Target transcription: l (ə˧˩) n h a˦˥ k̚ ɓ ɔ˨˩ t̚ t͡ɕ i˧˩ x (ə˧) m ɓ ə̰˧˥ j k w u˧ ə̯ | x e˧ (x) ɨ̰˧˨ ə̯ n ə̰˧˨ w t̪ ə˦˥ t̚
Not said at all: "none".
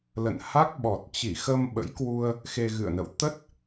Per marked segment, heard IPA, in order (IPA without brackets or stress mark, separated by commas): ə̰˧˨, ə˧, ɣ